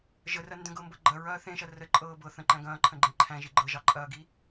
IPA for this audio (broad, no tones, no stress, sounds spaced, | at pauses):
ʒ ə r ɐ n d ə̃ ɡ ɤ m b ɤ ɡ͡ǃ ɐ ɹ ɐː θ ẽ ʃ ɐ r ə ǃʼ ɤː b ɤ θ ə̃ ǃ æ̃ ɡ ɐ̃ː ǃʰ ə̃ ɡ͡ǃ ẽ ǃʰ æ̃ ʒ i ɡ͡ǃ ɤ ʒ ɑ ǃʼ ɐː ɡ i